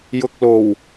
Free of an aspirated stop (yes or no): yes